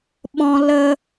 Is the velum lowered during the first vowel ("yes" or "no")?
yes